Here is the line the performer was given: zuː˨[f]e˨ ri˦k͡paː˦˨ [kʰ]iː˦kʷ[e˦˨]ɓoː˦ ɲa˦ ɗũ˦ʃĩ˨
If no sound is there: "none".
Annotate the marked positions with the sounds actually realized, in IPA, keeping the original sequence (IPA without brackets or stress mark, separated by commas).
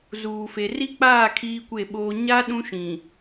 f, kʰ, e˦˨